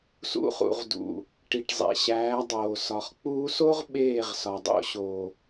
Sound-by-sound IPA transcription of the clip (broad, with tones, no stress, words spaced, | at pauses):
sṵ˧χṵ˨ʁdṵ˨ | ʈi˨ʈzˤḛ˨ɕæː˨˦ dˤoː˨sɒ˨χ k͡puː˧so˦ʁ ɓeː˦˨ʁsɒ˨ dˤo̰˨˦ɕoː˨